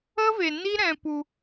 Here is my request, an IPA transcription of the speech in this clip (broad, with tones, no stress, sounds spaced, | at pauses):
ə˦ v e˨ n i˦ ɾ ɛ̃˧ p u˧